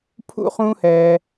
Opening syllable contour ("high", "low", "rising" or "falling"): falling